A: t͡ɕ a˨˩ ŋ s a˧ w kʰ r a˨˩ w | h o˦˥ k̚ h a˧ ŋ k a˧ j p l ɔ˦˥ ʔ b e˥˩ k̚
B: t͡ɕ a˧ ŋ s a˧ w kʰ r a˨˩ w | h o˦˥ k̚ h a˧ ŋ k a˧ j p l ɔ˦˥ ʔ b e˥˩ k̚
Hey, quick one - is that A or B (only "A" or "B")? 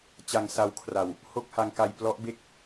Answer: B